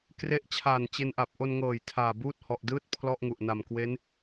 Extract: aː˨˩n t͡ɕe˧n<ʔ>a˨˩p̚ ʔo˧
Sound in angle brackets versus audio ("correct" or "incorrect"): correct